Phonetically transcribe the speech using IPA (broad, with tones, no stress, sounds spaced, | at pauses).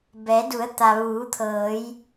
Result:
b ɛː˩˧ d u˩˧ ə̯ t̪ a˩ ʋ uː˩˧ t̪ʰ ɤː˩˧ j